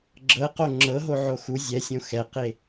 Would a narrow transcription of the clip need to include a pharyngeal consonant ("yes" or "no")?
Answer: yes